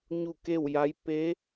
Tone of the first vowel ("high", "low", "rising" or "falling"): falling